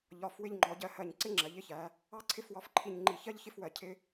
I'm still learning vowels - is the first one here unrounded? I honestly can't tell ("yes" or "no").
no